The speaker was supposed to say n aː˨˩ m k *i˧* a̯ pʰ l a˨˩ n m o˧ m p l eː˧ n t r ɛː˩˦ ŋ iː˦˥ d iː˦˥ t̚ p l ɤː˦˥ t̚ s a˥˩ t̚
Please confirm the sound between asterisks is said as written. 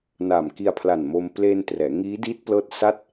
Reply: yes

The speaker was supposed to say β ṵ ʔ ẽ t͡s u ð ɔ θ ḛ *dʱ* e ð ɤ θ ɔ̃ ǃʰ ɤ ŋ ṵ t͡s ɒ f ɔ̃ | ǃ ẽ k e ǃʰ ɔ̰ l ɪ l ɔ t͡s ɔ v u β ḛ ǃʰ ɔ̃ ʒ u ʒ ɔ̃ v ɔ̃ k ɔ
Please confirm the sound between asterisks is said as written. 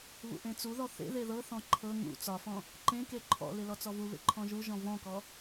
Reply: no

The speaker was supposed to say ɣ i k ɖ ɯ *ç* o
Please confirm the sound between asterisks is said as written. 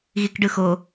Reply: no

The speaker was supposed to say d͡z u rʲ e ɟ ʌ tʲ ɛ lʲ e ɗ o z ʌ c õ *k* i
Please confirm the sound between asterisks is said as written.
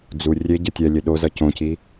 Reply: no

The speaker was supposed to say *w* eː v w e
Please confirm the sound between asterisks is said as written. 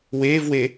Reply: yes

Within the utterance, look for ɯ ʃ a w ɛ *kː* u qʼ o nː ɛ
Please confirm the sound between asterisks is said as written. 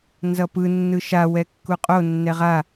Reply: yes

